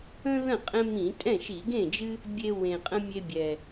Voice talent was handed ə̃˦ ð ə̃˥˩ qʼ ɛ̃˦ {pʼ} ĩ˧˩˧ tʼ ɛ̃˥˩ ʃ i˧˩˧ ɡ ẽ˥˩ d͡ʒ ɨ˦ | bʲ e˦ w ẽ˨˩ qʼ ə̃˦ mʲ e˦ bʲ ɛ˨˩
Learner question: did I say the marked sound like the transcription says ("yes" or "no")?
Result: no